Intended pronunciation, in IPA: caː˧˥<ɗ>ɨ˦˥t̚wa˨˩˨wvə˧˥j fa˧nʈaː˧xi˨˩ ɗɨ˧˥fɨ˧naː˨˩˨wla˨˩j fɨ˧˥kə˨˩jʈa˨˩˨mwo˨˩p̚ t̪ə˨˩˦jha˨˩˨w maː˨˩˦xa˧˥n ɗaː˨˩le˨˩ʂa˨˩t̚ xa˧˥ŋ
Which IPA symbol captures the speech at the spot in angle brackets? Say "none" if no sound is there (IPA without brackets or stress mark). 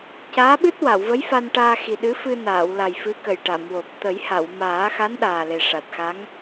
ɓ